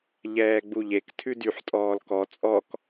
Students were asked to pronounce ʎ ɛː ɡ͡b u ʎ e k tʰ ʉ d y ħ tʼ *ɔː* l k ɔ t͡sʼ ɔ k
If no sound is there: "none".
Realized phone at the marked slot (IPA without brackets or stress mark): ɔː